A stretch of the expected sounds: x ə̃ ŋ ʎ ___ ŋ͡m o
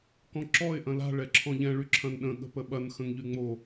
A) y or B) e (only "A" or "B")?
A